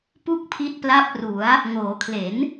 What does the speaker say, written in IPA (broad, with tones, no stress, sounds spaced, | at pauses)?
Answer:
p u˥˩ k̚ pʰ i˦˥ t̚ p l a˦˥ p̚ r u˩˦ a̯ | ŋ oː˩˦ kʰ l e˩˦ n